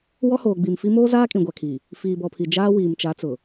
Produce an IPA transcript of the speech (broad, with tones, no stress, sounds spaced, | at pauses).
w ɔ˦ h oː˨ ɡ͡b i˨ m f i˦ m oː˦ z aː˦ kʼ ĩ˨ ɡʷ a˨ kʰ i˨ | f iː˨ b ɔ˨ pʰ i˨ d͡ʒ aː˦ w iː˨ m t͡ʃ a˨˦ t͡s ʊ˨